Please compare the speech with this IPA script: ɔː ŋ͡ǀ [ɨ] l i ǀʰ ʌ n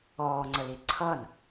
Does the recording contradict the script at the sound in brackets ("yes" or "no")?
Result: yes